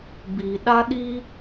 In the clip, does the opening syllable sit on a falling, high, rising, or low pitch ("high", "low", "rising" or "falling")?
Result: low